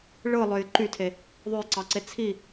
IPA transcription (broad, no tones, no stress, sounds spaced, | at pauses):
ɭ ɯ lˠ ø j ǃ y tʰ e | ðˤ ø j ǀ ɑ ǀ e t͡sʰ i